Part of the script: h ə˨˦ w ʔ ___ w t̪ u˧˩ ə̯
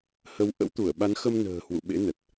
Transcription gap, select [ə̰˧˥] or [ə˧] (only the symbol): ə̰˧˥